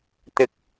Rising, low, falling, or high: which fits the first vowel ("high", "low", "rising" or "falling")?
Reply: high